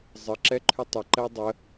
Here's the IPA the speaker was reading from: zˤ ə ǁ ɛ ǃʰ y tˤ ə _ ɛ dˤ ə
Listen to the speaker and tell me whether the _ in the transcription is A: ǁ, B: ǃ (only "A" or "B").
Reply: B